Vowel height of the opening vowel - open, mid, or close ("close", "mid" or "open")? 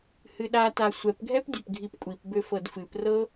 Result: close